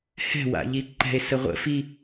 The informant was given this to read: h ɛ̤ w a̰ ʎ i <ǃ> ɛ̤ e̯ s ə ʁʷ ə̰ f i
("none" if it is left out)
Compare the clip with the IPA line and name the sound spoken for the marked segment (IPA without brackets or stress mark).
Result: ǃ